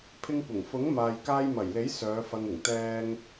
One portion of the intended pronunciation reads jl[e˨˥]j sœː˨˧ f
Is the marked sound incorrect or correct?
correct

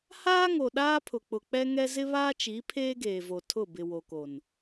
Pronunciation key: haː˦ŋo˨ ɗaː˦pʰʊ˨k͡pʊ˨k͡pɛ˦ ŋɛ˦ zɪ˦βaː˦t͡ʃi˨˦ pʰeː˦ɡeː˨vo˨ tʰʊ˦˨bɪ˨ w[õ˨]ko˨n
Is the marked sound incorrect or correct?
incorrect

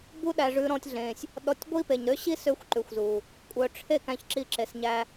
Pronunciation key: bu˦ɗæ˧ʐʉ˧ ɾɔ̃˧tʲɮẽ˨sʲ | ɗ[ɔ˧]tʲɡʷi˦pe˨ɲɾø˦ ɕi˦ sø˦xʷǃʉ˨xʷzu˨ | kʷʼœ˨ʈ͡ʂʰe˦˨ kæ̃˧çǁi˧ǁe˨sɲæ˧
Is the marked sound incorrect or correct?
correct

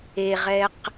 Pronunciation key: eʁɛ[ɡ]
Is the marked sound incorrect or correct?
incorrect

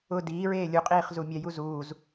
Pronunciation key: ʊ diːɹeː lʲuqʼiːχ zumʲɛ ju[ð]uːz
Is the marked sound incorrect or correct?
incorrect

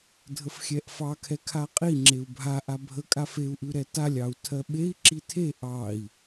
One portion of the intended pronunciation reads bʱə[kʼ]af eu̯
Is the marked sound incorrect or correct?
correct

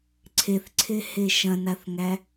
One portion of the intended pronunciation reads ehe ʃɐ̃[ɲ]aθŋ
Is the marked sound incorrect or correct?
incorrect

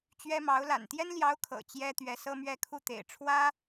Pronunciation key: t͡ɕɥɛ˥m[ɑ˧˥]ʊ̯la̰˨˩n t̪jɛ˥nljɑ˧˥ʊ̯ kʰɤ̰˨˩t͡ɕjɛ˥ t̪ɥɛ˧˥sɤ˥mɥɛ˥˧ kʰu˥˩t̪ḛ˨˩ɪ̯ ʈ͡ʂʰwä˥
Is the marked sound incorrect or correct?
correct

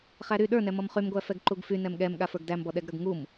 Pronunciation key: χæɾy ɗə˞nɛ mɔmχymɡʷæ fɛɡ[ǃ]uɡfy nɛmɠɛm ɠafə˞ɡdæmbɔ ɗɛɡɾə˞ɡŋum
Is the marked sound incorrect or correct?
correct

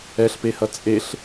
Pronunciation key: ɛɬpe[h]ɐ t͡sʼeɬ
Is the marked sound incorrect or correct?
correct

